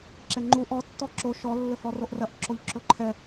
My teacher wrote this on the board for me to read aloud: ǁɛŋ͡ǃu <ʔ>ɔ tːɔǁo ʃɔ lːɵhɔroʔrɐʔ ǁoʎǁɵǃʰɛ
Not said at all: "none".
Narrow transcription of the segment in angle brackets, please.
ʔ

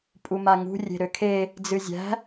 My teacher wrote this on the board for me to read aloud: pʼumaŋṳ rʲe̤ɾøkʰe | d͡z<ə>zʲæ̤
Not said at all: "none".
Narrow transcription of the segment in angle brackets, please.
ɨ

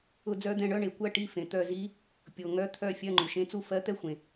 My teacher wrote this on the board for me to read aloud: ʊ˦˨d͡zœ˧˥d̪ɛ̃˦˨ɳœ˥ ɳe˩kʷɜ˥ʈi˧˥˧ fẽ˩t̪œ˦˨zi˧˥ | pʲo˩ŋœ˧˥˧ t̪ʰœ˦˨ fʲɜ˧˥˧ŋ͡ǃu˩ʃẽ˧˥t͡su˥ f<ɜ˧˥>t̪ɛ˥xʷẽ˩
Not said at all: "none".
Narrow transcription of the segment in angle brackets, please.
ɜ˧˥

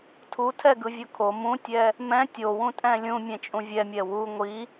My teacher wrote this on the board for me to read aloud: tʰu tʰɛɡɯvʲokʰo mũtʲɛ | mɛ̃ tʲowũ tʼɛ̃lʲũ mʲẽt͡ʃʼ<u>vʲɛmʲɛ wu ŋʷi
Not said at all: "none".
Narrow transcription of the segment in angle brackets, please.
ũ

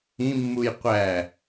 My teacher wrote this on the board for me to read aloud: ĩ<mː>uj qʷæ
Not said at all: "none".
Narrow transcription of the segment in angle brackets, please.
mː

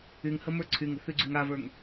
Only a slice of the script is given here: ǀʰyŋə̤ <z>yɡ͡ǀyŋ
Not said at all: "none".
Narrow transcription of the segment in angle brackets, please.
θ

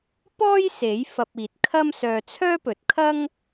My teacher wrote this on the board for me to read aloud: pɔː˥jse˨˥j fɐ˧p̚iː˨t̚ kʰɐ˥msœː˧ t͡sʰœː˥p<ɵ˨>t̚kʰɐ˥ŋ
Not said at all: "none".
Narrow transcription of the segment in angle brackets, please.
ɵ˨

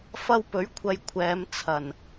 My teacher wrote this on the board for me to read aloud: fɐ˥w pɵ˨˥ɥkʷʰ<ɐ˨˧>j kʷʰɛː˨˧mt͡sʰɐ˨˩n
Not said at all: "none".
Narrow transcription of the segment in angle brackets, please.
ɐ˨˧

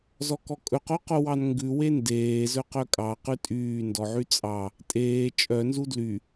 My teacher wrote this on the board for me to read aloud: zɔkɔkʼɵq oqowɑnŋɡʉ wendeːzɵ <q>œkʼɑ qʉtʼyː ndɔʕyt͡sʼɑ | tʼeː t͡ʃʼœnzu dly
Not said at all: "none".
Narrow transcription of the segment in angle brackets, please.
q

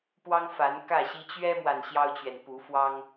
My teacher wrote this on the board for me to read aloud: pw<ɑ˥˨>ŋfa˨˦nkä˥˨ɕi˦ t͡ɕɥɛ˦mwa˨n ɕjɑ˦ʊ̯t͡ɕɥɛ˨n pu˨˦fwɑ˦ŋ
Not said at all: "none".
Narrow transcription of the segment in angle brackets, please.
ɑ˦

